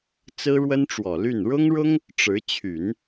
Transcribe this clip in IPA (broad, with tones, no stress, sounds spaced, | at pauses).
t͡s ɹ̩˥ ɻ w ə˥ n ʈ͡ʂ w ɔ˨˩ l y˥˩ n ɻ ʊ˥ ŋ ɻ ʊ˥ ŋ | ʈ͡ʂ ɻ̩˧˥ t͡ɕʰ y˨˩˦ n